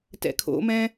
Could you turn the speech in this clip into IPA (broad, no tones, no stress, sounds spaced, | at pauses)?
t ɛ̰ kʰ o̰ m ɛ̃ː